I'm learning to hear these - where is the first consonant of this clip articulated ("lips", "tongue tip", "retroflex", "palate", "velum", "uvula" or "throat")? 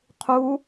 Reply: uvula